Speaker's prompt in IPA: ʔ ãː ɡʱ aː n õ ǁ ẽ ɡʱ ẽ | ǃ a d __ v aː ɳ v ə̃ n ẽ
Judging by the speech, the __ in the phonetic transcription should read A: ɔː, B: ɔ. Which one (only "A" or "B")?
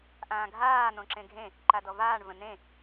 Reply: B